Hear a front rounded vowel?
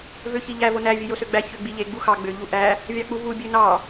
yes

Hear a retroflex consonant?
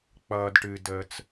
yes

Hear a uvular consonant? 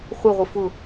yes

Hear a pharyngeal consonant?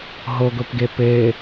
no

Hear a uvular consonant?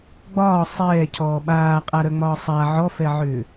yes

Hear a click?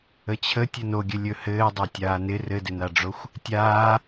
no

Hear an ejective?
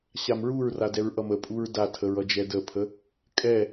yes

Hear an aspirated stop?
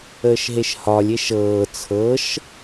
yes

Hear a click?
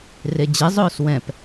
no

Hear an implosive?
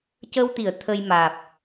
no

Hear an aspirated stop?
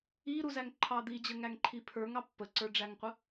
yes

